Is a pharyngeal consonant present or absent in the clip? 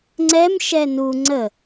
absent